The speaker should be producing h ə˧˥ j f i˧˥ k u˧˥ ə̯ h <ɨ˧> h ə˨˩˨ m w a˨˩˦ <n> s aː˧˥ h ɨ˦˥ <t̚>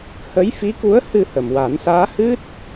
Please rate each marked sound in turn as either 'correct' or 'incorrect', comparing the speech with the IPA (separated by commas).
correct, correct, correct